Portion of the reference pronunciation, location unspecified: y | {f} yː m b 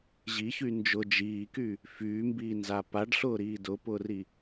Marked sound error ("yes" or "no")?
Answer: no